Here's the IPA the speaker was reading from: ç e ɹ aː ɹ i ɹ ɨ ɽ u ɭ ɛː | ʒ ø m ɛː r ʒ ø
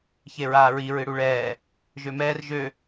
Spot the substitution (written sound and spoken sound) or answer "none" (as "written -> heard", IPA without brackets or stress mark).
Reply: none